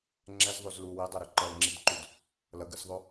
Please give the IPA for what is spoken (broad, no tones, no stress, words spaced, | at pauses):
ŋ͡ǁɛzðˤoz lu widˤaɾu ǃʌlŋ͡ǁidǃud | lʌɡɯsðˤo